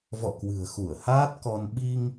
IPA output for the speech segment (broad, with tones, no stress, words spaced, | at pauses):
vɔ̰˧˨kwɨ̤˨˩ə̯ xu˧˩ə̯haː˦˥t̚kɔ˧n ɓi˧ŋ